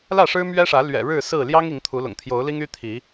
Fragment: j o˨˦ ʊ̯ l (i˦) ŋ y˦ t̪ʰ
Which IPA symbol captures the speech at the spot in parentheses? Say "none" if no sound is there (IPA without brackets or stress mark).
i˦